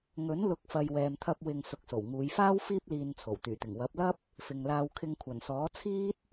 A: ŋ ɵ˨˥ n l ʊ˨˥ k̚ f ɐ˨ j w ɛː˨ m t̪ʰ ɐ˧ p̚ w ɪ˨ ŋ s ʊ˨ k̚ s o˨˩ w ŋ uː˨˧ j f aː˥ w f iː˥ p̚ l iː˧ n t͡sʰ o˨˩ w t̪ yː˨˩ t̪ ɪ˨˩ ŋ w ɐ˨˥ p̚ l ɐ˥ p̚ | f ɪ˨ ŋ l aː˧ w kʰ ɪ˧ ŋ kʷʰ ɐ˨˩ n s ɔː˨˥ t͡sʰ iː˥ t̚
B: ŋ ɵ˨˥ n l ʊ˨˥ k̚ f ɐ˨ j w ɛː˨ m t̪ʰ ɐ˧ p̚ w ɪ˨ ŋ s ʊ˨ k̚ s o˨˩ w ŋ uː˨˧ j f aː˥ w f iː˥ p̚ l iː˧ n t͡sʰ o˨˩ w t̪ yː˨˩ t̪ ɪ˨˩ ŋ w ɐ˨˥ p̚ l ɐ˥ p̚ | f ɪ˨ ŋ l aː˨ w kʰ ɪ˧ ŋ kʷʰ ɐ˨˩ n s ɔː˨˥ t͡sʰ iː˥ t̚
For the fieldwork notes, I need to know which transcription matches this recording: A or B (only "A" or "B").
A